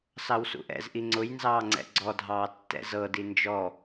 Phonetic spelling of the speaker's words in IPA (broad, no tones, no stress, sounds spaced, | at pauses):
s ɑ w s ṵ ʔ ɛ̰ z ʔ i ŋ͡ǀ ʊ j n z ɑː ŋ͡ǀ ɛ̰ ɡ͡ǀ ɔ dʱ ɑː tː ɛ̰ z ɤ d i n d͡ʒ ɔ